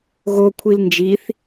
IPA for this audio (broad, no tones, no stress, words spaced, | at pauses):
ɣokʷʰil nd͡ʒiθ